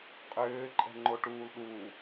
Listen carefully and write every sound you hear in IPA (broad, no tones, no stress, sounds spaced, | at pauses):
qʼ ʏː ǃʼ ɛ̤ ŋ͡ǃ o ʈ uː l ɗ u